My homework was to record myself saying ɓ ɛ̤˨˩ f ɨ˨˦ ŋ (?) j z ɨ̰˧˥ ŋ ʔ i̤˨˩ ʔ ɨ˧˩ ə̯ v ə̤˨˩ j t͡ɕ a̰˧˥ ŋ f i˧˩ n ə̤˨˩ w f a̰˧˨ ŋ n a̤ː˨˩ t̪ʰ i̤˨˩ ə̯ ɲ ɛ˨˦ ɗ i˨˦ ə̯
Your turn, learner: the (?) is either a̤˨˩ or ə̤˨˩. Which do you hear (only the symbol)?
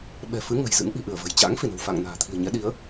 ə̤˨˩